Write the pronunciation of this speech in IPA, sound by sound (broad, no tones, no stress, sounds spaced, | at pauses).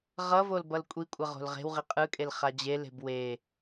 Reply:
ʁ ʌ v o l b ʌ l kʷʼ i kʷʼ ʌ ʁ o̤ l ʁ e̤ w ʁ i qʼ ɯ kʼ e l χ a d͡ʑ e l e̤ b w e